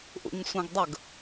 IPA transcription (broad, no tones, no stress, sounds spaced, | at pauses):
ʔ ṵ ɲ sʷ ɛ̃ ɡ dˤ ə ɡ